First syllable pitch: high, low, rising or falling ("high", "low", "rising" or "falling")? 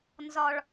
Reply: high